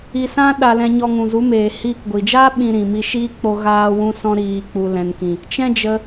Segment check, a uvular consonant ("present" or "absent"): absent